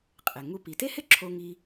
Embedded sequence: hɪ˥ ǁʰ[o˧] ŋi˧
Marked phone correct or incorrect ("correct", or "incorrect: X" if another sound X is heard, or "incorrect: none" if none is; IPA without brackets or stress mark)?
correct